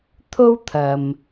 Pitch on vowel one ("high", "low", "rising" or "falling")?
high